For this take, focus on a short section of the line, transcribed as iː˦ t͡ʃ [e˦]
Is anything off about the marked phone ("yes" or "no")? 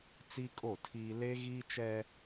yes